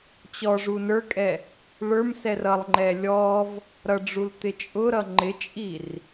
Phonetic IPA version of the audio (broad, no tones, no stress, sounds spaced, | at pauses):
t͡ɕ ɔ ʐ u n ə˞ kʼ ɛ | ɭ ə˞ m s ɛ r ʌ lˠ ŋ͡ǃ ɛ lʲ ɔ v | ɾ ʌ ɖ͡ʐ u l t̪ ɪ t͡ʃʼ ʊ ɾ ʌ ŋ͡ǃ ɪ t͡ʃʼ i r